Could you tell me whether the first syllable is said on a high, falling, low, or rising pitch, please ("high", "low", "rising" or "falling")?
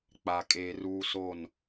low